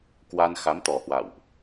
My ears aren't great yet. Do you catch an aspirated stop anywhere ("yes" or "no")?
no